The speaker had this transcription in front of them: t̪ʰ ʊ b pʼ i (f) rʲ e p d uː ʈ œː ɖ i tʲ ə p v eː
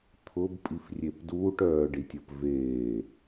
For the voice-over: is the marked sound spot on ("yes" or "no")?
yes